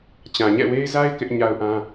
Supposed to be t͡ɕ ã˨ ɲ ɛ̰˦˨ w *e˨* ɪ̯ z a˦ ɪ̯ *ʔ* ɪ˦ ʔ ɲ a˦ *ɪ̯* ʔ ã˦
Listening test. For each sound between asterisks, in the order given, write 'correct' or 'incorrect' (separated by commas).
incorrect, incorrect, incorrect